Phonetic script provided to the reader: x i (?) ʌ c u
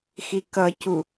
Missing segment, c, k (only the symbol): k